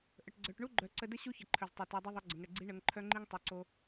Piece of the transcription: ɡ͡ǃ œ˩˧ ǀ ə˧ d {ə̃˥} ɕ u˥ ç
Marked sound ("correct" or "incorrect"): incorrect